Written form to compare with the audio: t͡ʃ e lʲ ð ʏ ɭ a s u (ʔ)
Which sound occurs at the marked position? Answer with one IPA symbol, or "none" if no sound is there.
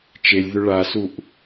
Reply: ʔ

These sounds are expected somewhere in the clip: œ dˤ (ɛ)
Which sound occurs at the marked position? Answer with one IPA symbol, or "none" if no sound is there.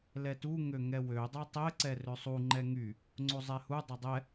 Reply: ɛ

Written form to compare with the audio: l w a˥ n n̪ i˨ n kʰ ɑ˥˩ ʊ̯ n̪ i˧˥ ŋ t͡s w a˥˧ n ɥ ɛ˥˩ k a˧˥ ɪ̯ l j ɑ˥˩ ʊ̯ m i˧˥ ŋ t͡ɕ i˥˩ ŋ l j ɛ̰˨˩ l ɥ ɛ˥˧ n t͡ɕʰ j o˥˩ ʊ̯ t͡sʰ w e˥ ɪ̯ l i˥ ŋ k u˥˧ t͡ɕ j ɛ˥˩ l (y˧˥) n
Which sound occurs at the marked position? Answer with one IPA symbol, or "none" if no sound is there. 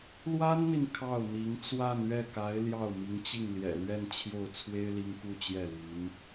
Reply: y˧˥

